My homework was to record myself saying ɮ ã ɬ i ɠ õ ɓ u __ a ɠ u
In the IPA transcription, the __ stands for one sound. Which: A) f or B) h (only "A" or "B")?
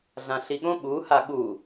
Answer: B